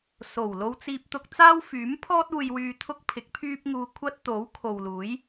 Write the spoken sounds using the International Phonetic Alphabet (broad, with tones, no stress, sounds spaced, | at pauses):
s o˨˩ w l o˧ w t͡s iː˧ p̚ t̪ ʊ˧ k̚ t͡s aː˥ w f yː˨˥ m pʰ ɔː˥ t̚ uː˧ j w yː˧ t̪ʰ ʊ˥ k̚ pʰ ɪ˨˥ k̚ pʰ yː˥ p̚ ŋ uː˧ kʷʰ ɐ˥ t̚ t̪ o˨˥ w kʰ o˨ w l uː˨˥ j